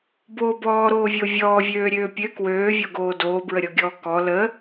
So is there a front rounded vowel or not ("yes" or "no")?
yes